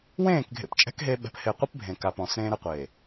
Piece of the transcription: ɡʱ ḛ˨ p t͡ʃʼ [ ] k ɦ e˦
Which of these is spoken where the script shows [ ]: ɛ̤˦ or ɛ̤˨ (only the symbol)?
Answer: ɛ̤˦